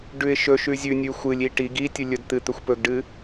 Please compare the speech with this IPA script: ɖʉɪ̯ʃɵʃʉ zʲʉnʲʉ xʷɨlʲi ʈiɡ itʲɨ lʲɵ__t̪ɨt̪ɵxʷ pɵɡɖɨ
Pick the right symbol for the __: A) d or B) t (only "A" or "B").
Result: A